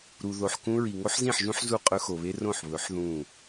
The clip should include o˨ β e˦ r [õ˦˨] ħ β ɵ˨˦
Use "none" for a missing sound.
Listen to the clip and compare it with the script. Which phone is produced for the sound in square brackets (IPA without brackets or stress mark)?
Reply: õ˦˨